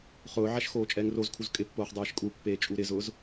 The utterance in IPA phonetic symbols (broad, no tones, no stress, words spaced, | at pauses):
χʊːʕaʃ xoːt͡ʃʼɛːŋrozkʰuz kʼɪpːoːχ dˤɛːʃkʼupːeː t͡ʃʼuɾɪzʊːz